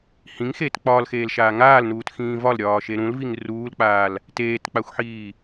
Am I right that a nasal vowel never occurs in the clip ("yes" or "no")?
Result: no